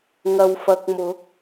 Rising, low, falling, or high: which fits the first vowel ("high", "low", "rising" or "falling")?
low